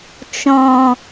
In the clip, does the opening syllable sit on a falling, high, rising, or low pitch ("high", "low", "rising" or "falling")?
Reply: low